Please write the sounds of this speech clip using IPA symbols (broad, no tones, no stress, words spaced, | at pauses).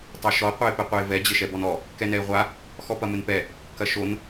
tˤoʃɔ qʷɛɪ̯pɛqʷɛɪ̯vɛ d͡ʑɘʃɛbɔnɔ | kɛnɛɪ̯ʁʷa | xɔpɐmɘnpɛ | kɐʃon